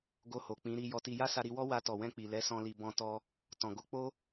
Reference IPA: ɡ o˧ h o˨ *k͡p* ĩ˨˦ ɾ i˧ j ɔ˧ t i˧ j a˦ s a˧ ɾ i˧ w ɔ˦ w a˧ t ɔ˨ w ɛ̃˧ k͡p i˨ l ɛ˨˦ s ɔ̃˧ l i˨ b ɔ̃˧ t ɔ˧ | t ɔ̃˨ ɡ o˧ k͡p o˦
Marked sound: correct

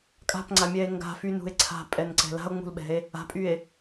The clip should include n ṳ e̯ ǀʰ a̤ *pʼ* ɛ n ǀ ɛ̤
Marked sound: correct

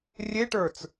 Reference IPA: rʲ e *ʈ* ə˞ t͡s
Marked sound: correct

